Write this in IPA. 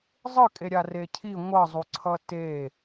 zˤ ɯ kʼ e ɾʲ a r e cʰ i ŋʷ ʌ zˤ u ǀʰ ʌ t e

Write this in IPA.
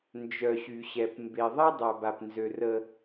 n d͡ʒ œ˨ ɕ y˨ ɕ ɛ˨ p m b e˨ ðˤ ɛ˦ dˤ a˨ b a˨ p n z ø˨ r ə˦

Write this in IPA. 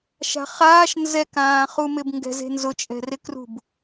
ʃ a̤ χ aː ʃ n z ɛ k ãː χ u m ɪ b ŋ ɡ ɛ̤ z e̤ n z ʊ t͡ʃʼ ɛ̤ r ɪ k r ṳ b

